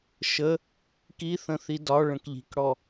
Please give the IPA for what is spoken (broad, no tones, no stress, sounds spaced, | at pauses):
ʃ ə | k i θ ə̃ θ i d ɒ ɭ ə̃ k ʎ i̤ k ɽ ɔ